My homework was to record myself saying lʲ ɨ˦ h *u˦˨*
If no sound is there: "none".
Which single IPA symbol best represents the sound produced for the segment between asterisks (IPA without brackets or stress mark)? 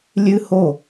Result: o˦˨